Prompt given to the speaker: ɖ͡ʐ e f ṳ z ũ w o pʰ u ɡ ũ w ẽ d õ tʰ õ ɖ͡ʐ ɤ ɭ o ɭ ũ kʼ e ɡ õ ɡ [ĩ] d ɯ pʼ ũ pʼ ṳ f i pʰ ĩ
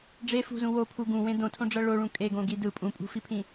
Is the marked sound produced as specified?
no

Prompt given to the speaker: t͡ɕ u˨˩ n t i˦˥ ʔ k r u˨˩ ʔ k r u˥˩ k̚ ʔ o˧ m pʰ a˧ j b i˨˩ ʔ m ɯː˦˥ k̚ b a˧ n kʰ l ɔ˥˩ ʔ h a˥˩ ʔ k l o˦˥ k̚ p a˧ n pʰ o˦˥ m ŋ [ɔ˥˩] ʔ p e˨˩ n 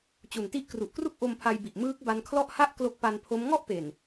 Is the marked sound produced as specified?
yes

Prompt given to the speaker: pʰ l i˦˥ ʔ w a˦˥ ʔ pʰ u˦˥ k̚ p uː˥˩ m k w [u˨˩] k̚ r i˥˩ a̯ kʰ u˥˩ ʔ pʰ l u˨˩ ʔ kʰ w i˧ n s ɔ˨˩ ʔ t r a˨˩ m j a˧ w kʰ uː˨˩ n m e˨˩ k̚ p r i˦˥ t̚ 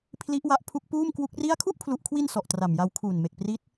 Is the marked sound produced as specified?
no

